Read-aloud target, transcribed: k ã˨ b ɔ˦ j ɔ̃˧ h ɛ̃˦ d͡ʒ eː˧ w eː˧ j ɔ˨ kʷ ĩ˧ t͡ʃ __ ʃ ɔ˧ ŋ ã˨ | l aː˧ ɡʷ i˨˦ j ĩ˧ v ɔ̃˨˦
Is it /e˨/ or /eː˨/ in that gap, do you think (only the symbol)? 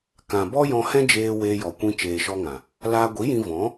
eː˨